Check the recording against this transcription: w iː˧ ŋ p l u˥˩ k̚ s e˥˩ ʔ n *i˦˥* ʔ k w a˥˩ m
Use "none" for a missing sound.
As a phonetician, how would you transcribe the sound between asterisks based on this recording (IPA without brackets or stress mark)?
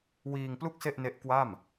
e˦˥